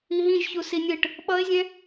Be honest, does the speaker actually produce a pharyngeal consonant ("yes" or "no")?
no